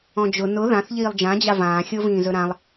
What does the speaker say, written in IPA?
ɔ̃ d͡ʒ ʊ n ʊ ð ã θ ʎ iː lˠ d͡ʒ ã d͡ʑ a v ãː xʲ o v ĩː z ɵ ɾ ã lˠ

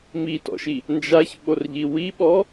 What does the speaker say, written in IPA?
m i t ɔ̰ ʃ i | n d͡ʒ a ç ɓ o r ʎ i w i ɓ ɔ

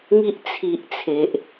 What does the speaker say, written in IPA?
ŋ i˦ ʔ t͡sʰ i˦ ʔ t͡sʰ e˦ ʔ

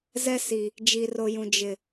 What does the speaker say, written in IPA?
z ɛ˦ s i˨ | d͡ʒ i˨ r o˨ j ũ˨ d͡ʒ ɪ˨

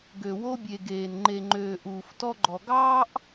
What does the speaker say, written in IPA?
ɡ ø˨ w o˦ bʲ e˨ ɡ eː˨ n ŋ͡ǃ e˨ ŋ͡ǃ øː˨ ʔ uː˨ f t ɔ˦ ɡ͡ǃ ɔ˨ ɡ ɑː˦ ʔ

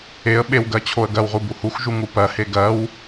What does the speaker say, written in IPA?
e ə̯ ɓ e w ɡ ɜ t͡ɕʰ o ə̯ ɡ ɜ w ʁ u b u h u x ʒ u ŋ u p ɜ h e ɡ ɜ w

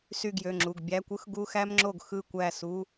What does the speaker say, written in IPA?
s y˥˩ ɡ j ø˩˧˩ ŋ͡ǁ u˩˧˩ ɡ bʲ æ˧˥˧ kʷ ɯ˥ x ɡ u˧˥˧ x æ˥ m ŋ͡ǁ o˥˩ ɡ x ɯ˥˩ kʷ æ˥˩ s u˧˥˧

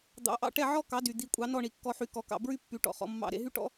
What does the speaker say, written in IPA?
d̪ ɑ̰˩˥ ʔ ɑ̰˥˩ ʈ ɛ˥˩ ʕ ɔ˥ k ɑ˩˥ d y˩ d̪ i˩˥ kʷʼ ɑ˩˥ n ɔ˥˩ ɳ i˩ kː ɔ˧ ħ y˩˥ k ɔ˩˥ k ɑ̰˥˩ b ɹ y˥ pː y˩˥ ʈ ɔ̰˩ χ ɔ̰˩˥ mː ɑ̰˥˩ ɾ ḛ˧ ɦ y˥ ʈ ɔ̰˥

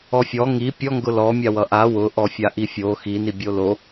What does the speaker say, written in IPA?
ɔ fʲ ɔ ŋ i pʲ ɔ ŋ ɡ ʊ l ɔ mʲ a w ʌ ʔ a w ʊ ʔ ɔ fʲ a ʔ i fʲ o x i n i bʲ o l o

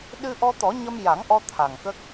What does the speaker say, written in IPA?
ɗ ɨ˧ ʔ ɔ˧ t̪ ɔ˨˩˦ ɲ ə˧ m j a˨˩˦ ŋ ʔ ɔ˧ t̪ʰ a˨˩ ŋ k ə˦˥ k̚

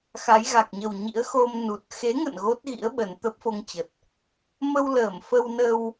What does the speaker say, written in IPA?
x a˨˦ j ɣ a˨˩ k̚ ɲ ə˨˩ w ɲ ḭ˧˥ ə̯ x o˧ m n u˨˩ t̚ x e˨˦ ŋ ə̰˧˨ n ɣ o˦˥ t̚ ɣ ḭ˧˥ ə̯ ɓ ə˨˩ n t̪ ə˦˥ p̚ f o˧ ŋ t͡ɕ ə˨˩ t̚ | m ə˧ w l əː˧˩ m f ə˧ w n ə˧ w

